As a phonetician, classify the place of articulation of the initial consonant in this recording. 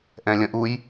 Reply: glottal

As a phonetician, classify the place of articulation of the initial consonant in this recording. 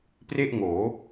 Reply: labial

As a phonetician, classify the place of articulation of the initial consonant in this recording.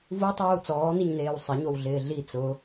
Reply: labial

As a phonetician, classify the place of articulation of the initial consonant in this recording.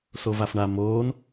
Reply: alveolar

